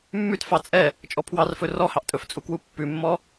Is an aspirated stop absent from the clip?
no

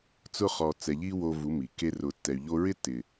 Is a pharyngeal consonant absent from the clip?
yes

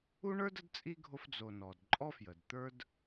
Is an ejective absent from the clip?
no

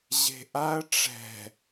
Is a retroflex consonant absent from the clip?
no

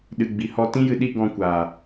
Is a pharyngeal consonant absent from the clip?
yes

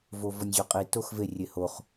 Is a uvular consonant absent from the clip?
no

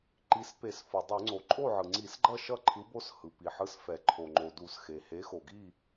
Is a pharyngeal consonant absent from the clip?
no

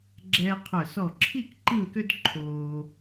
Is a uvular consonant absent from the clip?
no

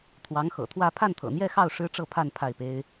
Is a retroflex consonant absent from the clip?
no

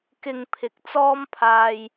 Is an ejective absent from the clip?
yes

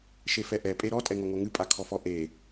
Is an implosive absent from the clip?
yes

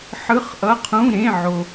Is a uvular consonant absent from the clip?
no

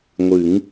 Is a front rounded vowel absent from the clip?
yes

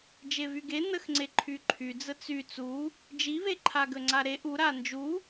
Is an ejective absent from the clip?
yes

